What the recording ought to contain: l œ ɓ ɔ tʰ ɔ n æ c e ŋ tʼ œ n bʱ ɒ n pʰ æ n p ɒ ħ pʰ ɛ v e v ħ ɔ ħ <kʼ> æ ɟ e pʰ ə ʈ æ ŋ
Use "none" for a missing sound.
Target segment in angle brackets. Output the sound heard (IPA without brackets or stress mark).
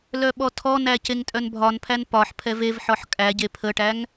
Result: kʼ